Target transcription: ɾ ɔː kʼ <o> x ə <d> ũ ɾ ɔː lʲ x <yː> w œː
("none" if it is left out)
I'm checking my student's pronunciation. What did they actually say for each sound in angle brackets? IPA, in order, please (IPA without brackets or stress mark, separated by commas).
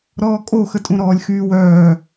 o, tʼ, yː